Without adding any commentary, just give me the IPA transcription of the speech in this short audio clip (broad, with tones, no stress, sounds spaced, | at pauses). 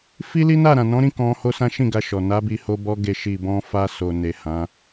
f i˦ l i˦ n a˦˨ ɾ ã˨ n ɔ̃˨˦ ɾ ĩ˦˨ k ɔ̃˧ h o˦ s ã˦ ʃ ĩ˦˨ ɡ a˧ ʃ ɔ˨ n a˨˦ b i˧ h o˧ b ɔ˧ ɡ e˨ ʃ i˨ b ɔ̃˧ f a˧ s o˨ n e˨ h ã˨˦